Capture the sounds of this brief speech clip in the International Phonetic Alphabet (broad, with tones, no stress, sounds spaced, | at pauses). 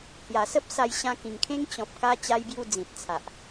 h j a˨˩ s ə˦ p̚ s a˧ j ɕ ã˧ k ĩ˨˩ ŋ kʰ ẽ˦ ŋ t͡ɕ ɔ̃˨ p̚ k a˧ t͡ɕ a˧ j b j u˧ d͡z ĩ˨ t̚ t͡sʰ a˨ ʔ